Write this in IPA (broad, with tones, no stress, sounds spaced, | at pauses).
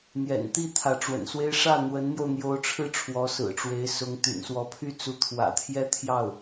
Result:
n̪ j ɛ̰˨˩ n t̪ i˥˩ t̪ʰ ä˧˥ ʈ͡ʂ w ə̰˨˩ n s w e˥ ɪ̯ ʂ ä˥˩ n̪ w ə˧˥ n n̪ j o˧ ʊ̯ n̪ j o˧˥ ʊ̯ ʈ͡ʂʰ ɻ̩˥˩ ʈ͡ʂʰ w ɔ˧˥ s ɹ̩˨˩ ʈ͡ʂ w e˧˥ ɪ̯ s ʊ˧˥ ŋ t̪ y̰˨˩ n s w ɔ˧˥ pʰ y˥˩ t͡s u˧˥ t̪ʰ w ä̰˨˩ t̪ʰ j ɛ˥ t̪ʰ j ɑ˥˩ ʊ̯